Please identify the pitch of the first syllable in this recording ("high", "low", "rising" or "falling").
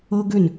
high